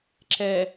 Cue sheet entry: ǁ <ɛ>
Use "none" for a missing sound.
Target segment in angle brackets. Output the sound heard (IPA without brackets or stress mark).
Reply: ɛ